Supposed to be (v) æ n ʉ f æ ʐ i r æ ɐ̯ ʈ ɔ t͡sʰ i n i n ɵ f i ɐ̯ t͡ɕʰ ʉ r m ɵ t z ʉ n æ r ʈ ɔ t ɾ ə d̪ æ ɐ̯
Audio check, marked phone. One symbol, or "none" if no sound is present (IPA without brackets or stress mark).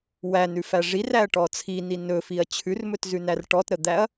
w